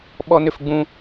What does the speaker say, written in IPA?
ɓ ɔ˦ n ʏ˦ f ɡ͡b ũ˦

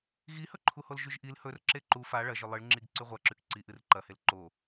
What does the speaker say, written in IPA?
ɣ i h ɵ ǃʰ u h o l ʒ ʉ ʒ ʔ i l h ɵ r ǁ e ǃ u f a ɭ ɐ ʒ ɵ lˠ ɨ ɭ ŋ͡ǁ i ɡ ǀ ʉ ʁʷ a ǁ ʉ k ǀ i ʔ ɨ r ǃ ɐ h e l ǃ o

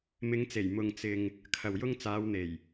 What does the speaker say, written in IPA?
m ɪ˨˧ ŋ t͡s e˨˩ j m ʊ˧ ŋ t͡s ɪ˧ ŋ | kʰ ɐ˨ w j ʊ˥ ŋ t͡s aː˨˧ w n̪ e˨˩ j

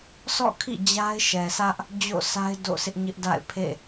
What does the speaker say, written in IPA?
s ɔ̰˦˨ kʰ ḭ˦˨ d͡ʑ a˦ ɪ̯ ʃ ɛ˨ s ä˦ ʔ | d͡ʑ o̰˦˨ s a˦ ɪ̯ d o̰˦˨ s ɪ˦ ʔ ɲ ɪ˦ ʔ d a̰˦˨ ɪ̯ pʰ ḛ˦˨

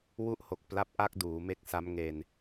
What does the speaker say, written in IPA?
w u˦˥ ʔ h o˨˩ k̚ p l a˦˥ p̚ ʔ a˥˩ k̚ d uː˩˦ m e˦˥ k̚ s a˦˥ m ŋ e˧ n

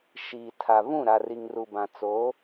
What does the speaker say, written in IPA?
ʃ iː˨ tʰ a˨ v ũ˦˨ ɾ a˨ r i˨ ŋ r u˨ b ã˨ t͡s o˨˦

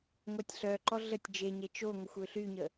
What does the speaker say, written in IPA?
ŋʷ a tʲ ɬ œ ǃ ɔ ɮ ə tʲ d͡ʒ e ɲ e t͡ʃ o ŋʷ ə xʷ ø ɬ y ɲ ə

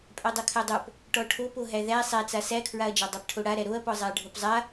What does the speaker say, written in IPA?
pʼ æ dˤ o kʰ æ dˤ o p | ʈ ɔ ʈʰ o p o ɦ æ ð æ sˤ æ t͡s a s æ kʰ ɹ a ɐ̯ d͡ʒ a dˤ æ p ʈʰ o ɽ a ɾ æ ɾ o ɐ̯ p ɔ zˤ a ɐ̯ ɖʱ o p zˤ a

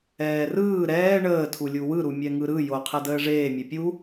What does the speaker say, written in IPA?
ɛː r ɯː ɾ ɛː ɳ əː tʰ u lʲ u w ɯ ɾ u mʲ ɛ ŋ ɯ ɾ ɯ j o qʰ ɛ d əː ʐ eː mʲ e pʲ u

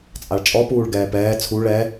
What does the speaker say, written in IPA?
t͡sʼ a ɭ t͡ʃʼ ɔ p uː ɭ ɡ ɛː p ɛː t͡sʰ u ɭ ɛ

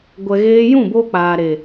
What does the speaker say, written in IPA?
ɡʷ ɛ˧ ɣ eː˦ j ũ˦˨ b o˧ k͡p aː˨ ɾ e˨

